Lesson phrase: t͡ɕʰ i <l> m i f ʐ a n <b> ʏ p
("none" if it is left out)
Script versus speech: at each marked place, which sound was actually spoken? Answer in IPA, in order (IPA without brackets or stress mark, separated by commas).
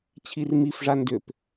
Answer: r, d